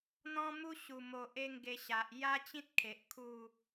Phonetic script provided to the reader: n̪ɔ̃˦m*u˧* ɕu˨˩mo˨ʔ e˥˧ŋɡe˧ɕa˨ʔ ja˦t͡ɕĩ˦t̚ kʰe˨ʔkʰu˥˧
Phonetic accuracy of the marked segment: incorrect: u˦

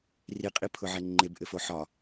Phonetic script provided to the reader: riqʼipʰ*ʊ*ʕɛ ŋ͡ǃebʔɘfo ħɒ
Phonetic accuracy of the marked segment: correct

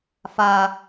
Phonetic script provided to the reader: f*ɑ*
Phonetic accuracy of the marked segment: incorrect: a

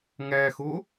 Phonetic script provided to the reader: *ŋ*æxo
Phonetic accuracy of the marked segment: correct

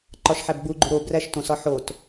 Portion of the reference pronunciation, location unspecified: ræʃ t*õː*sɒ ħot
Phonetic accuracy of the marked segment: incorrect: õ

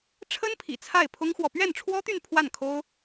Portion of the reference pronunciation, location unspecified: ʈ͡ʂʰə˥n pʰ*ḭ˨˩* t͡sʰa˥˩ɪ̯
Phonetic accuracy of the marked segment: correct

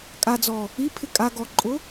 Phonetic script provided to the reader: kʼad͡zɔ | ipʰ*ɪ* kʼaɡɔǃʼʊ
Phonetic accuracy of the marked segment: correct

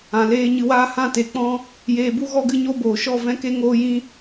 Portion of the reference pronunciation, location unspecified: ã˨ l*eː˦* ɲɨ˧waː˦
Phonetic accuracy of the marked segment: incorrect: eː˧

